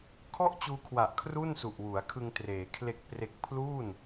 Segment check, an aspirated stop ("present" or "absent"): present